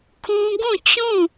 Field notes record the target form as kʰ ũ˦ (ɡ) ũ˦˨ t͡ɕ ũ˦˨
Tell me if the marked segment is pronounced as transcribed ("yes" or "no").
yes